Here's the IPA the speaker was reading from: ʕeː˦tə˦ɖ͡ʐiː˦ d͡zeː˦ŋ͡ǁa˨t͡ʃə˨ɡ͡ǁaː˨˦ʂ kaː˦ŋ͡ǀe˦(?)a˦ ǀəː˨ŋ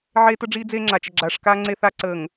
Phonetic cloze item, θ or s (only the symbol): θ